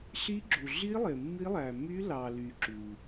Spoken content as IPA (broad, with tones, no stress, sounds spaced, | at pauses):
ɬ i˦˥ ɡ͡ǁ u˨ ɮ i˦˥ lˠ e˨ mː i˦˥ lˠ æ˨ m y˦˥ l ɑ˨ l y˨ ǁ u˨